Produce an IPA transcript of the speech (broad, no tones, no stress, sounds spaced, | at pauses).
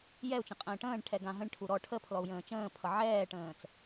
j ɛ u̯ t͡ʃ ə̃ qʼ ə̃ː ʈ ə̃ː ɳ ʈʰ ɛ ɡ ã ɦ ə̃ ɳ ʈʰ u ɾ ɔ ʈʰ ə pʰ l ɔ u̯ j ə̃ː t͡ʃ ə̃ː pʰ ʌ ʕ ɛː ʈ ə̃ː t͡s